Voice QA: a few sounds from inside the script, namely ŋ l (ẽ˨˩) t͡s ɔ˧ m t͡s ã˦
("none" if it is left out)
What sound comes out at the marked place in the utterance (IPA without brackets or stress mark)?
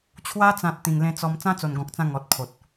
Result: ẽ˧